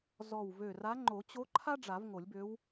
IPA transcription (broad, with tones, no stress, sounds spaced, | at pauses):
z ɔ˧˩ w v ø˧˩ r a˧˥ ŋ͡ǃ o˨˩˦ t͡ɕ o˧˥ ǃʰ a˥ ɖ͡ʐ a˨˩˦ v ŋ o˨˩˦ lʲ b ø˧˥ w